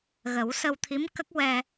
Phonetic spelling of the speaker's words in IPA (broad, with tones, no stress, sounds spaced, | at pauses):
ɣ ə˨˩˦ w s ə˧ w t̪ʰ i˧˥ m k ə˦˥ k̚ w ɛ˧